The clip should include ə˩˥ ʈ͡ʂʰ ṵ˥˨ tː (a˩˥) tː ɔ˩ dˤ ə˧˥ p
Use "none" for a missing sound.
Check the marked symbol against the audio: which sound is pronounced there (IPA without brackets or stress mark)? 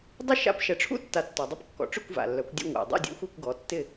a˩˥